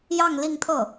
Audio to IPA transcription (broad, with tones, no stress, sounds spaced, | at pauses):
j ɑ˥˧ ŋ l i˥˧ ŋ t̪ʰ ɤ˥˩